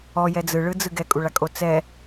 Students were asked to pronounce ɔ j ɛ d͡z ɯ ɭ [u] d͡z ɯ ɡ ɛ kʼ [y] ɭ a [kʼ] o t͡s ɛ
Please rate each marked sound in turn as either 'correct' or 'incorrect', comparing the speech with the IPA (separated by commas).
incorrect, incorrect, correct